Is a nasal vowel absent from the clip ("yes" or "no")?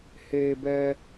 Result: yes